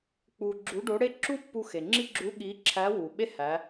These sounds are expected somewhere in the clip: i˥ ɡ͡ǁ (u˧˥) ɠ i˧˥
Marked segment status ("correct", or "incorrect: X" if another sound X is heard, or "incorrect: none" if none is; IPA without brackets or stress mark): correct